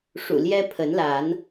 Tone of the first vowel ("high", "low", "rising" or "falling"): low